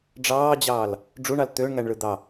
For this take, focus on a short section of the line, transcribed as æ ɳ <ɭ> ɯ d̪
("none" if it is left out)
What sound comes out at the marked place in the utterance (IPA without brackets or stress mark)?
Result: ɭ